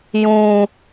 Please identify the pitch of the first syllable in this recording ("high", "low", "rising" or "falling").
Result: high